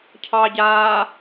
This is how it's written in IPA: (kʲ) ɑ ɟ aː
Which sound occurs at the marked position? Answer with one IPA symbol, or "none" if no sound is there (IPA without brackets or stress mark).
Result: cʰ